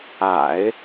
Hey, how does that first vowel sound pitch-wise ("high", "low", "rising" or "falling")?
low